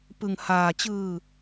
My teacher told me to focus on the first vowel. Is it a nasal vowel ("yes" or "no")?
no